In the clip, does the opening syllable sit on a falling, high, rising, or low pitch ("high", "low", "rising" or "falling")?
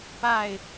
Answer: falling